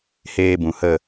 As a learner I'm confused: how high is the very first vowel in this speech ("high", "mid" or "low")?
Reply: mid